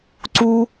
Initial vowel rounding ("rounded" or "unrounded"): rounded